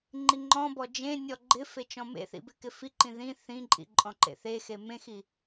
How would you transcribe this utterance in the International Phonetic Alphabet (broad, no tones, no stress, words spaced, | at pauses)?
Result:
ŋ͡ǃiŋ͡ǃɔ̃bɔ d͡ʒẽ nʲɔɡ͡ǃɪfe t͡ʃɔ̃mḛθḭ bɪkɪfiǃĩ ðĩ θĩǃʼḭ ǃʼɔ̃ǃḛθexe mẽxi